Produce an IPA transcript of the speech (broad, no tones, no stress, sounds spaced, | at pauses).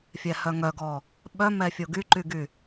fʲ ɛ h œ ŋ œ ɡ ɔ | ɓ œ m ɛ fʲ o ɡ y ǃ y ɡ y